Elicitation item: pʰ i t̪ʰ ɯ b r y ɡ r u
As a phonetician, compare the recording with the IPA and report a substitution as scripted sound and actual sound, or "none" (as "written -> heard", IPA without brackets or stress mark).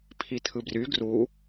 none